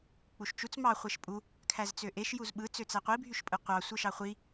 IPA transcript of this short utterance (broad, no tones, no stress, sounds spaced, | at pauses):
k͡p u ʃ t͡ʃ u t͡s m ɑ χʷ e ʃ pʼ u | kʰ æ z t͡s ø ʔ e ʃ j u z ɓ ɯ t͡s ø t͡s æ qʷ i bʱ y ʃ pʼ ɯ qʷ ɑ sʷ ɯ ʃ ɑ χʷ i